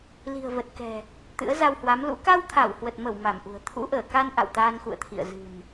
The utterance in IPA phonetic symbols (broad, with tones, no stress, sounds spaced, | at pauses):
l i̤˨˩ ə̯ v ə˨˩ t̚ k ɛ̤˨˩ | t̪ ɨ̰˧˥ ə̯ z a˧ w h w a˨˦ m l ṵ˧˥ k a˧ w t̪ʰ a˧˩ w h w ə˨˩ t̚ m ə˧˩ w m a˧˩ m ʔ ṳ˨˩ ə̯ t̪ʰ ṵ˧˥ ʔ əː˧˩ k a˧ n ʔ a̰˧˨ w t̪ aː˧ n x ṵ˧˨ ə̯ t̪ʰ ḭ˧˨ ə̯ z ɨ̤˨˩ n